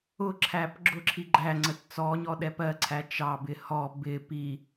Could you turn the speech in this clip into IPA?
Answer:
ʊ ǁʰ æ p ɡ͡ǁ ʊ ǁʰ i ɡ͡ǃ æ ŋ͡ǀ ə t t͡s ɔ ɲ ɔ ɗ ɛ p ɜ ǀʰ æ t͡ʃ ɑ b ɪ h ɔ b ɪ p i

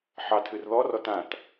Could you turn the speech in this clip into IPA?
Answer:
ħ ɑ tʰ ɨ r ð ɔ r ɔ t ã t

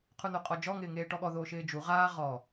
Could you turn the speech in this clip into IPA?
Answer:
qʰ u n o qʼ ɔ d͡ʒ ɔ ŋ ɪː ŋ eː ʈ ɔ ɠ ɔ ð oː ʃ ɪː d͡ʒ u ʁ aː ʁ ɔ

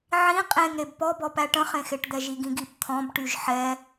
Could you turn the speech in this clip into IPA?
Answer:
ʕ ĩ qʼ ẽ ŋ ɾ e b p ɔ b ɔ p æ ʈ ə̃ χ ẽ x e ʈ d̪ ɛ ʒ i ɡ ĩ ɡ i p t̪ʰ ɔ̃ b ʈ y ʒ ħ ɛ

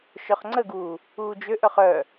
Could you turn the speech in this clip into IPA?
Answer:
ʃ œ χ ŋ͡ǀ ə ɡ uː | uː d͡ʒ ø ʔ œ χ œ

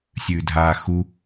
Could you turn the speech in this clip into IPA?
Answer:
sʲ ʉː dʱ aː x u

